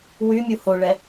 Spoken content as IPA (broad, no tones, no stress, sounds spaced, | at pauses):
w y mʲ u h o ɭ ɛ